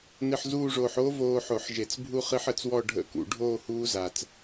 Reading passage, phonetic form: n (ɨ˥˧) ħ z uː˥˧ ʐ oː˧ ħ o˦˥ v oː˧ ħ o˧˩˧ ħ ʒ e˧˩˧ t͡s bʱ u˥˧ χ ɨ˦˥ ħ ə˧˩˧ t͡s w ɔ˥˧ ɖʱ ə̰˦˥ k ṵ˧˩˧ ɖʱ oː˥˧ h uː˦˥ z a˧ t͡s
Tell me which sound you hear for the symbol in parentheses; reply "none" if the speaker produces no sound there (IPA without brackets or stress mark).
ɨ˧